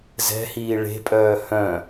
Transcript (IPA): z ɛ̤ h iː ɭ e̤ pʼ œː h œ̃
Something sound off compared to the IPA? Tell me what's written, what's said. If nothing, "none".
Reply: none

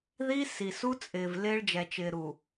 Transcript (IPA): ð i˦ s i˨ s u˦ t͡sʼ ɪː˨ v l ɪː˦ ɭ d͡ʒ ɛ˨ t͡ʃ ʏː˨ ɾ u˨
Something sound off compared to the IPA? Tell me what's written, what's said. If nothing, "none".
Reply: ʏː˨ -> ɪː˨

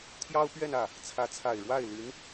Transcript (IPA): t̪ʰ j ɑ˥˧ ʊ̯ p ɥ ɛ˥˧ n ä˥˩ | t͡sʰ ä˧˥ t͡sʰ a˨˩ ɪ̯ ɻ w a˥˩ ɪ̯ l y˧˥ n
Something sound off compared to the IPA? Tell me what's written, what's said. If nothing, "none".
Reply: ɑ˥˧ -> ɑ˥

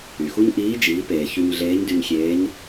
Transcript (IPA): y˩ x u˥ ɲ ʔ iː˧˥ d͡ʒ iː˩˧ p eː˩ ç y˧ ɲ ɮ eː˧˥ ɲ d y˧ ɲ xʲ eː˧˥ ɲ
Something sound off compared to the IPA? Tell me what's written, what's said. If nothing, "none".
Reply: none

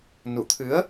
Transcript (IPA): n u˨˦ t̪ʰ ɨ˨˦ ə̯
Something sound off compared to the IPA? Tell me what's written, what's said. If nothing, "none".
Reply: u˨˦ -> u˧˩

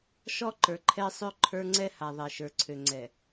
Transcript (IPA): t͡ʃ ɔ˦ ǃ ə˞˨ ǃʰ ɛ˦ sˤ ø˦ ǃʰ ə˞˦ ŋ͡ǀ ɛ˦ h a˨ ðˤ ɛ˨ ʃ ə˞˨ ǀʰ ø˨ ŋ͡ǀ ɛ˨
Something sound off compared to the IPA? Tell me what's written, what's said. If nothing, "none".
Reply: t͡ʃ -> ʃ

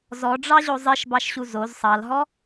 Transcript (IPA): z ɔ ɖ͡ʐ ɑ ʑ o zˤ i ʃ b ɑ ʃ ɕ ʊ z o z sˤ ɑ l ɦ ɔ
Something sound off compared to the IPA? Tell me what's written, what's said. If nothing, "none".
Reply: ʊ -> u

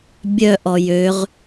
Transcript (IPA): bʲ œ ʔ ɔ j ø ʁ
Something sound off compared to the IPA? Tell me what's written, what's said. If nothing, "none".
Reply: none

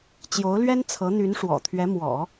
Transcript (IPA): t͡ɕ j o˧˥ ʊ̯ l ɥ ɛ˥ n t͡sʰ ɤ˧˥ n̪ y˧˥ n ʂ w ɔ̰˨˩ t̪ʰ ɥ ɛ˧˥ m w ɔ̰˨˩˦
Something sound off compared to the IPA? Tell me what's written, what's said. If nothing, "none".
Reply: none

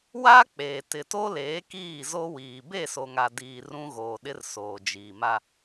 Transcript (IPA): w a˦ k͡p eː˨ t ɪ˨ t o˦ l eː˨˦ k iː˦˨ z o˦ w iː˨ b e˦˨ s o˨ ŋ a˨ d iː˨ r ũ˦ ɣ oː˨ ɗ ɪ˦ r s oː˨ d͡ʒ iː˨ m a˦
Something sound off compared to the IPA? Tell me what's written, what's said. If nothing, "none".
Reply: none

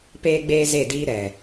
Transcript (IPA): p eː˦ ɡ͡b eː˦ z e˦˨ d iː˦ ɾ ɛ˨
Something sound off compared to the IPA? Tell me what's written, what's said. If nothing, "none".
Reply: none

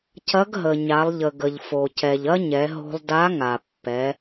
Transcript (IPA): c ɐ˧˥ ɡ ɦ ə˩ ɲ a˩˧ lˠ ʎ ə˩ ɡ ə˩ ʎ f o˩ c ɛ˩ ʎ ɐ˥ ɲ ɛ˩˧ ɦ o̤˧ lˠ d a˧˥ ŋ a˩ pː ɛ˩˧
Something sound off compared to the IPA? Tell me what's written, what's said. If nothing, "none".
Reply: none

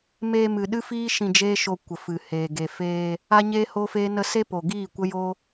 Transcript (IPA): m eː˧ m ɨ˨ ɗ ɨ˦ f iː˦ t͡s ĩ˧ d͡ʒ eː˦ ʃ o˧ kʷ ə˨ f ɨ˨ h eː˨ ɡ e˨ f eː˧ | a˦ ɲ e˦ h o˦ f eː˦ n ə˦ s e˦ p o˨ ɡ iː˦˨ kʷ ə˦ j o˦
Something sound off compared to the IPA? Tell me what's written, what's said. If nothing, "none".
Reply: t͡s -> ʃ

